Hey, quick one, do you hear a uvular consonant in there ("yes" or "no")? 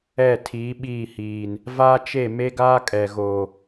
no